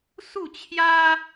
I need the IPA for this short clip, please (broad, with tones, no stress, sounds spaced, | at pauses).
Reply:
s u˥˧ t͡ɕʰ j a˦